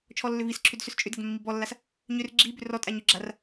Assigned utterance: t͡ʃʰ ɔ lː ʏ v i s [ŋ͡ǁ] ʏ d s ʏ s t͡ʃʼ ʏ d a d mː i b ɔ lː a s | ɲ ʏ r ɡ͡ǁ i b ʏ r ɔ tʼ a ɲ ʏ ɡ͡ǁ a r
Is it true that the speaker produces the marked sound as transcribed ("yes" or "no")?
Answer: no